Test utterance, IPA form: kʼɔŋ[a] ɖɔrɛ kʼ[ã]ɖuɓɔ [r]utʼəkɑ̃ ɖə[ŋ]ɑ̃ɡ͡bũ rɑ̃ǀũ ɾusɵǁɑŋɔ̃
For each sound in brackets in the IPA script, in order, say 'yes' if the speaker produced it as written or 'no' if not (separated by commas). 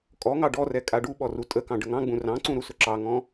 no, no, yes, yes